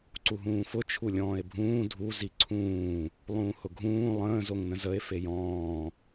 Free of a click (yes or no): no